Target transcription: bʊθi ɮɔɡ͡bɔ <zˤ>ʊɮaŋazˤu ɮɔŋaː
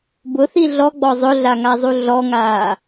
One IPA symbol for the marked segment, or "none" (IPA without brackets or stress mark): zˤ